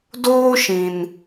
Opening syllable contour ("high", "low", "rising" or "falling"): high